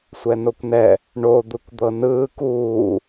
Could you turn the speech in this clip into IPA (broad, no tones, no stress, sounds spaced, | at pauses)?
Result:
sʷ ɛ n o kʷ n ɛ | ɳ o d̪ ɯ kʷ d̪ ɤ n ɯː k uː